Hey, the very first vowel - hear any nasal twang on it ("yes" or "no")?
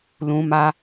yes